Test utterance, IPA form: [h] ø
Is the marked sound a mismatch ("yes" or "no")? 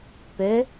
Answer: yes